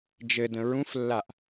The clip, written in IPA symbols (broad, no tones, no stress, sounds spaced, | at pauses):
d͡ʒ ɘ d ə̃ ɹ ũ f lː a ʔ